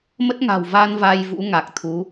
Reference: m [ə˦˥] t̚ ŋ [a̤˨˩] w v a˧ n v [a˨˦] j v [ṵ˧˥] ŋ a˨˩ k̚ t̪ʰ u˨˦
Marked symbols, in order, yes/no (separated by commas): yes, yes, no, yes